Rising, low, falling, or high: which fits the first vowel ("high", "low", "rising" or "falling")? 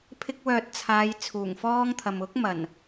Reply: high